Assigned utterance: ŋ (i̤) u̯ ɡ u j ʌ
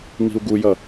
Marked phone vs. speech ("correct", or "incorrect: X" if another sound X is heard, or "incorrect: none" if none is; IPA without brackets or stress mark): correct